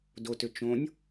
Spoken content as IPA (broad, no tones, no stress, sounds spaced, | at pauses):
d o t ʏ t͡ʃ õ nʲ